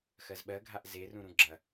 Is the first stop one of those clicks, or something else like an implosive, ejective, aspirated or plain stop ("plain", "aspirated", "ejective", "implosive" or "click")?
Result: implosive